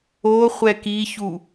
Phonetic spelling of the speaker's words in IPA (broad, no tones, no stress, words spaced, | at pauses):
o χʷɛkiçu